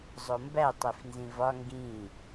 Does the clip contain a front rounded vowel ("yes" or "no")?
no